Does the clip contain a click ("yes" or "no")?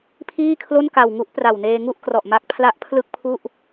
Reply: no